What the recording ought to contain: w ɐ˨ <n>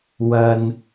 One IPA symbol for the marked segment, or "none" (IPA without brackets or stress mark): n